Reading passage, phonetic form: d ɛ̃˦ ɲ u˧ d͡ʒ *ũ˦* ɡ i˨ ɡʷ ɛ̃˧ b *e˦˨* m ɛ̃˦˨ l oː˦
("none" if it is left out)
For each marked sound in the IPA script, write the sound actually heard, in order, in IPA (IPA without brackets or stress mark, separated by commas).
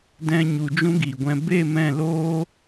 ũ˦, e˦˨